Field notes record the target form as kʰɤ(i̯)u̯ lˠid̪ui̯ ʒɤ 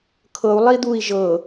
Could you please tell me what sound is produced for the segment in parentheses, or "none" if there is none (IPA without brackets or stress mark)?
none